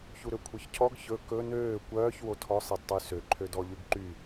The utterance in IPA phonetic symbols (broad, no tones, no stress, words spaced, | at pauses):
çuɾøkʷʰœçcʰɔɡ çɵ kɵ nøː kʷœːç wotʰɔ sˤedtˤysø ǃʰødɔʎʉɡǃy